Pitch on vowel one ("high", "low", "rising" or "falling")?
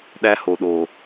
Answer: high